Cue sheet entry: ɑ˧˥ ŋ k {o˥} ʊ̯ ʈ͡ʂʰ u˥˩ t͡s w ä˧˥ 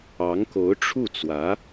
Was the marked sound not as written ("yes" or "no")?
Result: yes